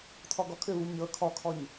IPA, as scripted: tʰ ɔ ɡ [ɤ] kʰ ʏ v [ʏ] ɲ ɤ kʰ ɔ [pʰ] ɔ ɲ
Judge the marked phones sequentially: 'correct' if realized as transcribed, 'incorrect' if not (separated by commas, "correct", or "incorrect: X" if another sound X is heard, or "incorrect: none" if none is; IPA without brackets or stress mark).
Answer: incorrect: ɔ, incorrect: u, incorrect: kʰ